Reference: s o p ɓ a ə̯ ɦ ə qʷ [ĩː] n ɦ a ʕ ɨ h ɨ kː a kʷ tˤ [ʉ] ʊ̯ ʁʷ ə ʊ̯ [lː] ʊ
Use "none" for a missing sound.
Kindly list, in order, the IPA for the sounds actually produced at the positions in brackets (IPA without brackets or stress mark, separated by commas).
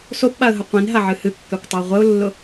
ĩ, ɨ, lː